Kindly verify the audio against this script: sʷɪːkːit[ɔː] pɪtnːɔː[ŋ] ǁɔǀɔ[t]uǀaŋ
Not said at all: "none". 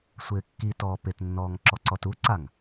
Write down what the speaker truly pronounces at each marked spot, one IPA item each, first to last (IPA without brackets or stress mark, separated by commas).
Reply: ɔː, ŋ, t